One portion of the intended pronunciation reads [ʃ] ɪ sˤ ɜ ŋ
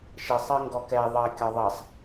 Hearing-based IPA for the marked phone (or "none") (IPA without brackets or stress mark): ʃ